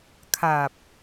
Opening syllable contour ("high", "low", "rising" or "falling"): low